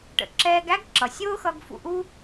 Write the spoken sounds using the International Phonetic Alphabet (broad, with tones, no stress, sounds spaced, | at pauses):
ʈ ə̰˩ ǁ ɛː˧ ɡ æ˥ ɡ ǁ ʌ˩ sʲ ʊː˥ x ʌ˧ ɡ f ṵ˧ ʔ u˥